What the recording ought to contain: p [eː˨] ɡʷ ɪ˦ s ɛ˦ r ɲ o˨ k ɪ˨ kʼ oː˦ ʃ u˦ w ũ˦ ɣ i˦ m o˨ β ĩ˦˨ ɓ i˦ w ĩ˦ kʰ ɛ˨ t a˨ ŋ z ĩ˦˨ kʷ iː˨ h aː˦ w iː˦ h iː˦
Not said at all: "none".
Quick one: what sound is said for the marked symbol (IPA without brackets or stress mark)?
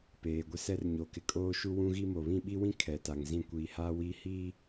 eː˨